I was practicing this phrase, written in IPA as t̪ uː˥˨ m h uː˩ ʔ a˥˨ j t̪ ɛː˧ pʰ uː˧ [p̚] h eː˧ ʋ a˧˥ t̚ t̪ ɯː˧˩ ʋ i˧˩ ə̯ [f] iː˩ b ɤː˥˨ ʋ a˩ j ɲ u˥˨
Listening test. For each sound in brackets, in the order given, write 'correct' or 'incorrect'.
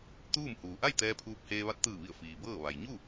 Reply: correct, correct

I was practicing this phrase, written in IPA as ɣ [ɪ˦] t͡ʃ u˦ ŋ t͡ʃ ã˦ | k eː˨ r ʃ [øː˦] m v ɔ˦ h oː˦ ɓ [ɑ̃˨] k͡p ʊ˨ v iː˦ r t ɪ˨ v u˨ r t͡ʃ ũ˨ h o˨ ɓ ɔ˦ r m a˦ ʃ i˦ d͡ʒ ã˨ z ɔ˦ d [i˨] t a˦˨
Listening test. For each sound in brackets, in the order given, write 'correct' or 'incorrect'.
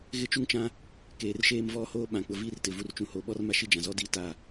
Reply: correct, incorrect, incorrect, incorrect

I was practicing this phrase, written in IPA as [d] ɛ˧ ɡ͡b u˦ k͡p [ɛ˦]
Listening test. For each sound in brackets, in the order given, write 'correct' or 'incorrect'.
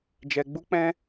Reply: incorrect, incorrect

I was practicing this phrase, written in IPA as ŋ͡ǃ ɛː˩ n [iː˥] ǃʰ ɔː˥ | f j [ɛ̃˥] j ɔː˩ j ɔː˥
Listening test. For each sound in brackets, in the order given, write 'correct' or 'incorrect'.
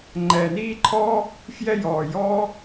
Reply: correct, incorrect

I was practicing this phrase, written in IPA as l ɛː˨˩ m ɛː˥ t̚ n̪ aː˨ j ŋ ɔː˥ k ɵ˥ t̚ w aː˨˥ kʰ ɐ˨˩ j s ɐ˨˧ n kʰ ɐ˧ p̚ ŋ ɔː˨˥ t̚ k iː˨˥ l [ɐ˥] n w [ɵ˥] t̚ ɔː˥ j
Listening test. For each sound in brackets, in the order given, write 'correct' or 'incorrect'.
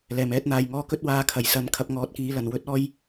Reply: incorrect, correct

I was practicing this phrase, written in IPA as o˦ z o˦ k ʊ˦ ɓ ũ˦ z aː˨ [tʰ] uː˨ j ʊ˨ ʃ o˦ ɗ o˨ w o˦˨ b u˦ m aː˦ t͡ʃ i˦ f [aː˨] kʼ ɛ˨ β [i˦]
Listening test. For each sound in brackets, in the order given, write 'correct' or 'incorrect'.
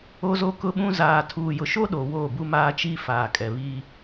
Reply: correct, correct, correct

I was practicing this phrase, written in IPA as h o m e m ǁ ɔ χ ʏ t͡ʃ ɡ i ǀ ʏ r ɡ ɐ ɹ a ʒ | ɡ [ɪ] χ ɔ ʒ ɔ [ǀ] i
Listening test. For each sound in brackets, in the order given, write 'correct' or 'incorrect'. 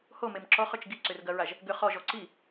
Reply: incorrect, correct

